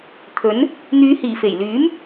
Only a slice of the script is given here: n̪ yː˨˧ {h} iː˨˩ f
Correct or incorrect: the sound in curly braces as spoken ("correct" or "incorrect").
correct